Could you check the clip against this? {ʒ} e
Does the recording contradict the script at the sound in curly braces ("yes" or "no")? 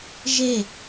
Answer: no